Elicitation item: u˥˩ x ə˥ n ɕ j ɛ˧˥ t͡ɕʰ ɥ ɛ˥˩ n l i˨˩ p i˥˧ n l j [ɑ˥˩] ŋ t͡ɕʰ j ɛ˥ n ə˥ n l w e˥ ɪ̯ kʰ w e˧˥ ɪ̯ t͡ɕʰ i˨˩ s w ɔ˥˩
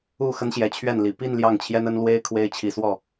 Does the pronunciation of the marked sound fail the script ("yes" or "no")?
no